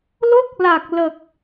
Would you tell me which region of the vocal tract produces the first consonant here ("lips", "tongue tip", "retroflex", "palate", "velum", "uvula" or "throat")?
tongue tip